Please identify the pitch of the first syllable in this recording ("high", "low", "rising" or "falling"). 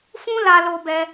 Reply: high